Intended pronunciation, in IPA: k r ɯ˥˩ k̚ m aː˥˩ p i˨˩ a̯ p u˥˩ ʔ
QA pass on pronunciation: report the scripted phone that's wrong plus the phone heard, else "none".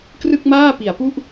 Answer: none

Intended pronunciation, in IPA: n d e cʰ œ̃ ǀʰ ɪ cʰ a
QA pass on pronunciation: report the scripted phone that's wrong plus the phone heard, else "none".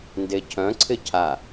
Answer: none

